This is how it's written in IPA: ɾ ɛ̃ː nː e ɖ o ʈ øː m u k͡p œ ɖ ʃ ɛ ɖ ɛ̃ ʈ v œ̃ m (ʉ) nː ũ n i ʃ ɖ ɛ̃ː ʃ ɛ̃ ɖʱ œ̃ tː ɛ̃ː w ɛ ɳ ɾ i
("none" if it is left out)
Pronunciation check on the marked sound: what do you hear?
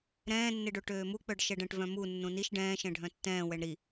u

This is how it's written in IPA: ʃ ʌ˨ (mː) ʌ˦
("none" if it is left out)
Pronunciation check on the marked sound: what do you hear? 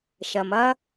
m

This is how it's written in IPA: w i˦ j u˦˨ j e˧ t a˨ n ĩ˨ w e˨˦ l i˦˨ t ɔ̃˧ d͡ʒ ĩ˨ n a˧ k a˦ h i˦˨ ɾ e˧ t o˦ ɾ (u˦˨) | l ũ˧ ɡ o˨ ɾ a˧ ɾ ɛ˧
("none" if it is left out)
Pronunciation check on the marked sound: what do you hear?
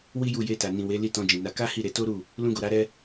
u˦˨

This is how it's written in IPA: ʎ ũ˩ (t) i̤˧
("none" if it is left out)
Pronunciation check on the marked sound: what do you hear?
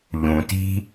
t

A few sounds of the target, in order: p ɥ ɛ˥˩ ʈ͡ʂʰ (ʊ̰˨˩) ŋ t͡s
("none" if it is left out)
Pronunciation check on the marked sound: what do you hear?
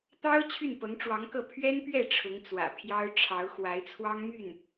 ʊ˧˥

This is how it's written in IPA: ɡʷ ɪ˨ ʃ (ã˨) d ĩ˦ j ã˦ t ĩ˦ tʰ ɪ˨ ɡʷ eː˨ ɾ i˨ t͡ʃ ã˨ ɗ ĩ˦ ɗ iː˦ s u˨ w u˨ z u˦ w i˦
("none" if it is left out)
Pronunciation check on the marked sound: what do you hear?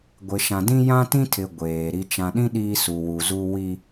ã˨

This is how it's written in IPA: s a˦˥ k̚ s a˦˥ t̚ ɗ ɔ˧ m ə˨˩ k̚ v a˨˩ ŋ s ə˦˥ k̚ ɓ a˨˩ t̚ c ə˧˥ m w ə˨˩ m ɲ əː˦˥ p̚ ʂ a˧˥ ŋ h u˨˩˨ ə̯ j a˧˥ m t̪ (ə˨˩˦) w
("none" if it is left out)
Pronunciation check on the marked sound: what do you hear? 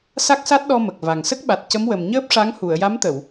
ə˨˩˨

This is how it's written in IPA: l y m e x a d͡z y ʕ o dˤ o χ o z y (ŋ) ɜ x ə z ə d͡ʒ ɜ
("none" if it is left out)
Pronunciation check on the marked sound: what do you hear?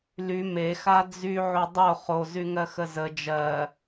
ŋ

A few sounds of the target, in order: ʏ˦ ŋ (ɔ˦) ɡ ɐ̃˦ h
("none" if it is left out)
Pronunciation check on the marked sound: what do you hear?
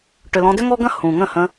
ɔ˦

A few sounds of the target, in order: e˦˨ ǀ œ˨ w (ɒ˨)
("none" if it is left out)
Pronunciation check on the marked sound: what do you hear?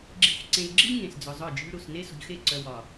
ɒ˨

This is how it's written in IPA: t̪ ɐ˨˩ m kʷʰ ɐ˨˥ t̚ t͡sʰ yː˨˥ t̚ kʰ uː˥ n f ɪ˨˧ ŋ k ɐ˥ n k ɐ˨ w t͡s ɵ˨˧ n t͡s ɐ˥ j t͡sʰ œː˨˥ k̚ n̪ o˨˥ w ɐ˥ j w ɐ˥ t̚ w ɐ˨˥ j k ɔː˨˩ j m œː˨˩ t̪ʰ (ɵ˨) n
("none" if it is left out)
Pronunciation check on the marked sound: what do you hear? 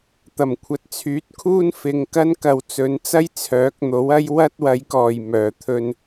ɵ˧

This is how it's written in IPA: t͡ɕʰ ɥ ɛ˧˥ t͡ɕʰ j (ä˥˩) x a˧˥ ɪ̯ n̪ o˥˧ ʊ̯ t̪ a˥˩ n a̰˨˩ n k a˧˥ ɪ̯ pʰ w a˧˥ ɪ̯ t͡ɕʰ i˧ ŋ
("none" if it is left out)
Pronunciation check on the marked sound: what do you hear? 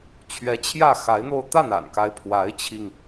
ä˥˩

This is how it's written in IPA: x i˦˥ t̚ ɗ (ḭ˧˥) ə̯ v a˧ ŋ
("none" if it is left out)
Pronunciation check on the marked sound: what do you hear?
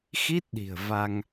i̤˨˩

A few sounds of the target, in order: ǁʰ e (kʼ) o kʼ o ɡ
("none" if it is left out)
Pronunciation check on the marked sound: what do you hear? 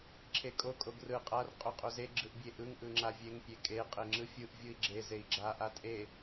kʼ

